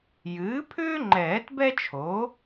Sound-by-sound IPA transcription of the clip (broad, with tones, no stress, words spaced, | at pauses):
jɨː˩˥pʰʏː˥ŋ͡ǃɛː˨˩˦t bɛ˥t͡ʃʰo˩˥